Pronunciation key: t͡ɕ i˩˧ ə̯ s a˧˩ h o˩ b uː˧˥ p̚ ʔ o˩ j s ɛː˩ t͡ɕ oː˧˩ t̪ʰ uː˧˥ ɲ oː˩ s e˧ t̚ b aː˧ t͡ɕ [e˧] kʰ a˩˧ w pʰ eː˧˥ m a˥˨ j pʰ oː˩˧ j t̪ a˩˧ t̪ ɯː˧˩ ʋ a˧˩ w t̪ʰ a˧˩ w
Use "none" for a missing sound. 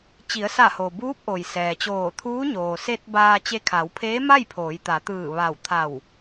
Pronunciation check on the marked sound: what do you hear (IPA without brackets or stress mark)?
e˧